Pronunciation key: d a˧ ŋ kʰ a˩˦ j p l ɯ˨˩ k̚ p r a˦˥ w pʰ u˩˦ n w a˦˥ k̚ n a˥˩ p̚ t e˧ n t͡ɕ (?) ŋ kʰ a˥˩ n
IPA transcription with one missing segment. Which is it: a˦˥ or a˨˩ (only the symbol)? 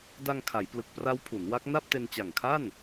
a˨˩